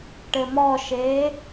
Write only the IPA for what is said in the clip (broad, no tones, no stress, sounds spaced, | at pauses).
ʈ ɘ m ɔ ʃ eː